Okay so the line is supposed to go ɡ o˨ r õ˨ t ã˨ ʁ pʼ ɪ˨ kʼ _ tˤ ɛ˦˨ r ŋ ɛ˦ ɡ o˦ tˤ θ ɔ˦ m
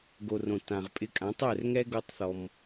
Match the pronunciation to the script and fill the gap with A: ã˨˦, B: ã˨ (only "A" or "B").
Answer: A